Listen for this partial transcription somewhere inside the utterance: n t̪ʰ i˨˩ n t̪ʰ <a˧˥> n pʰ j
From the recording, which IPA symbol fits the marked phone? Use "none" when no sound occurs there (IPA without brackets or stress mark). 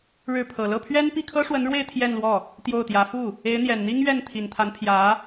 a˧˥